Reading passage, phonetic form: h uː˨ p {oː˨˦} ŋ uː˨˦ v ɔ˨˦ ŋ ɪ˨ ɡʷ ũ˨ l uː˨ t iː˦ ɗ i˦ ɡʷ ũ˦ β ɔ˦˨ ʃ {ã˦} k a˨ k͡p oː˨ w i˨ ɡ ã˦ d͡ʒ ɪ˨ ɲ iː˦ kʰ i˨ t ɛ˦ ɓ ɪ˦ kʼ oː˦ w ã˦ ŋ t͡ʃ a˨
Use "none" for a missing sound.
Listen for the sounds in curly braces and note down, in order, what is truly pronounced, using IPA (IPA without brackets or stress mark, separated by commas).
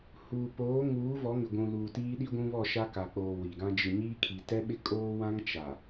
oː˨˦, a˦